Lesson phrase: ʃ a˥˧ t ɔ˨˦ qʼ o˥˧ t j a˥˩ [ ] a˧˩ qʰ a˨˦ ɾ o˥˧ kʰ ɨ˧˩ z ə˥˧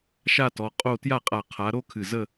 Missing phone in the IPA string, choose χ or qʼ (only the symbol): qʼ